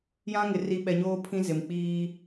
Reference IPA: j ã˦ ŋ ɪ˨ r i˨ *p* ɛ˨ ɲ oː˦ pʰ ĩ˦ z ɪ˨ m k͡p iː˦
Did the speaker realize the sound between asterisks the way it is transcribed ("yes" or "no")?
no